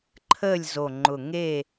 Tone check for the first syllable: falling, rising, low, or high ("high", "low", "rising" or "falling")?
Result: falling